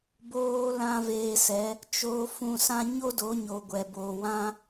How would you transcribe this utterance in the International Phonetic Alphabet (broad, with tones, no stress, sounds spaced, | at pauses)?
b oː˧ l ã˦ v eː˧ s ɛ˨˦ | t͡ʃ o˧ f ũ˧ s ã˦ ɲ o˦ d o˨˦ ɲ o˨ ɡʷ ɛ˨ b oː˨ w ã˦